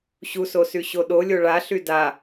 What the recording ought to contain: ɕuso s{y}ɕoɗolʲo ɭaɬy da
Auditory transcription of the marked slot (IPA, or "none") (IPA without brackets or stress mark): y